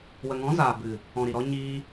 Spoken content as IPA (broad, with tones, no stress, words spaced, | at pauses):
wə˨ŋɔ̃˨˦zaː˨ bɨ˨ | ɔ̃˨ ɾi˨ɾɔ˧ ɲiː˧